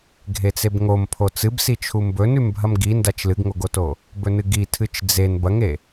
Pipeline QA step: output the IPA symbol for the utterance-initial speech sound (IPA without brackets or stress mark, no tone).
ɡʱ